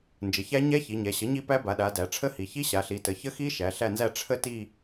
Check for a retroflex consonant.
present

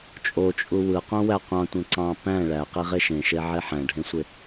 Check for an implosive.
absent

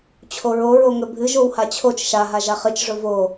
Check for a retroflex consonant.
present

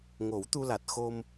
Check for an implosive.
absent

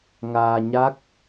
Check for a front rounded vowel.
absent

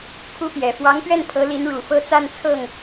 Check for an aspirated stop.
present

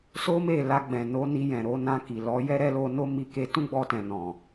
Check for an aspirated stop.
absent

